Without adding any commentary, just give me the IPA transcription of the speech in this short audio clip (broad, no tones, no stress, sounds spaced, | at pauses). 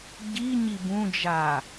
ɟ i ɲ i b ũ d͡ʒ a